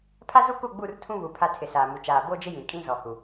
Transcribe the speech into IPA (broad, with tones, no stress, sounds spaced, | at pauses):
pʰ a˦ z u˦ k u˦˨ ɡ͡b u˦˨ r tʰ ũ˦ β u˨ pʰ a˦ tʰ ɪ˨ s aː˨ m u˨ t͡ʃ aː˨ b o˦ d͡ʒ ɪ˦ j ĩ˨ kʼ ĩ˦ z ɔ˨ h u˨